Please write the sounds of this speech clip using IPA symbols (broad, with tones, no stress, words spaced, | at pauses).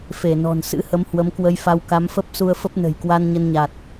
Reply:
fe˧˩nɔ̤˨˩n sɨ̰˧˥hə˨˦m hwə˨˦mkwə˧jfa˧w ka˨˦mfə˦˥p̚su˧ə̯fə˦˥p̚ nə̤˨˩jkwa˧n ɲə˧nɲa˨˩t̚